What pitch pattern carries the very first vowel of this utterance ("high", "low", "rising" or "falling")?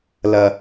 low